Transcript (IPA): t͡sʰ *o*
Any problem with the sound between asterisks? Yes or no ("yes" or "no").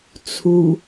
yes